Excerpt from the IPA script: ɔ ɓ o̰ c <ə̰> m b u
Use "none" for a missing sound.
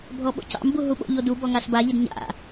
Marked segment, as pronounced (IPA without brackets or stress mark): ɑ̰